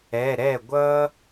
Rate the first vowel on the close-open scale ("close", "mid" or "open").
mid